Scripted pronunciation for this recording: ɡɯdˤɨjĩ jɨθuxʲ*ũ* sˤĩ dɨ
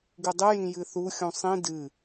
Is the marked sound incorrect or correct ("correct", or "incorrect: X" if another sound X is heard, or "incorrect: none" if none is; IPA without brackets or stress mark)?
correct